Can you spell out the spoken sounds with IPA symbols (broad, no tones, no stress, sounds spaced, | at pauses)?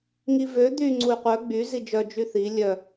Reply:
ŋ i v ø d̪ y ŋ͡ǀ u y̯ qʷ œ ɡ͡b y z i d͡ʒ œ d͡ʒ y θ i lʲ œ